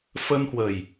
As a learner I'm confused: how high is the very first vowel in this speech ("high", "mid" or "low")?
mid